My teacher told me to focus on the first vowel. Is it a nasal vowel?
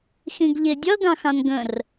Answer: yes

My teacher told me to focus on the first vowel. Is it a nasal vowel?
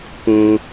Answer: yes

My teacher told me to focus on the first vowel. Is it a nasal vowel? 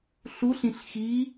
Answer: no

